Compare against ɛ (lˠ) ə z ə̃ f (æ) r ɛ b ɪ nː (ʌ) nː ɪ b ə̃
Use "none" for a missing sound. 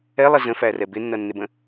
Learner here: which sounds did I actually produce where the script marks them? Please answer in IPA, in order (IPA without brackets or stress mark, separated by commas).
lˠ, æ, ʌ